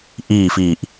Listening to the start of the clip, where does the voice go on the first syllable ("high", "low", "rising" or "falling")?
falling